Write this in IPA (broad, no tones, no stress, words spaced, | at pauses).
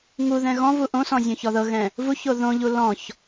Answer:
ŋuðɛ̃ ɣɔ̃ vuʔõsɔ̃ zʲõçɔðɤɣɛ̃ | vuço ðõʎu lɔ̃ç